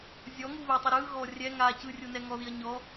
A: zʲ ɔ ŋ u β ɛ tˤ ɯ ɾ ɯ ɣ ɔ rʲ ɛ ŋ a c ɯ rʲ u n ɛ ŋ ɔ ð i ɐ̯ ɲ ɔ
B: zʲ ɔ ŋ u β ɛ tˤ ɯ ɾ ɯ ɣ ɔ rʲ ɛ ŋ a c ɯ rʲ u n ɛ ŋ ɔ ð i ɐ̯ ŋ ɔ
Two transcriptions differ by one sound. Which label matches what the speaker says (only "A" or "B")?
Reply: A